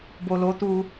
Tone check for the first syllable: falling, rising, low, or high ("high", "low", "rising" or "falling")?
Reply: low